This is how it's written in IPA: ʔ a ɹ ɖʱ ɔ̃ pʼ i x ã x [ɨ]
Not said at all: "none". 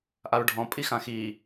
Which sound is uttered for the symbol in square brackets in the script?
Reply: i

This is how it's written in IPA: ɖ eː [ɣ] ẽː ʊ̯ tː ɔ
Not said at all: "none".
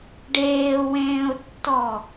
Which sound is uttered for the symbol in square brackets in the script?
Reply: w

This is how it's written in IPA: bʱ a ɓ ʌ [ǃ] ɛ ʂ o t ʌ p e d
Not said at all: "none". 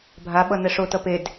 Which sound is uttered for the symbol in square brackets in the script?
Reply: n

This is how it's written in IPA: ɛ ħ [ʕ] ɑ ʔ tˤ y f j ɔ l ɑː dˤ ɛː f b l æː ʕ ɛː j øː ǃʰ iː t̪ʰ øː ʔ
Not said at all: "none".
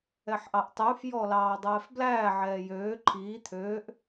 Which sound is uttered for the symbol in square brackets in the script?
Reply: ʔ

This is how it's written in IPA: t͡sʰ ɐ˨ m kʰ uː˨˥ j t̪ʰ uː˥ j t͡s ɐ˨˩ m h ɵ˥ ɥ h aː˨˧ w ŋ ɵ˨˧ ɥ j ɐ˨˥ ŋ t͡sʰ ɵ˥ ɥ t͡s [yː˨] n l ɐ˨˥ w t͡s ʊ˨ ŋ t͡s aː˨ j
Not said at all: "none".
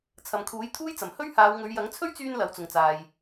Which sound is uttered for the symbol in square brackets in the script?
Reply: yː˧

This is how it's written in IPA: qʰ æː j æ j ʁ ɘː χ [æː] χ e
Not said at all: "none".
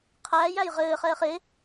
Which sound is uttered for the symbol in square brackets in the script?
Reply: ɛː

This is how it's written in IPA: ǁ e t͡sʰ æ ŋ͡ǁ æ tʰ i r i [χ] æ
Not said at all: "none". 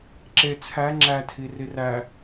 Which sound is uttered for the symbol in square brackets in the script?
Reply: r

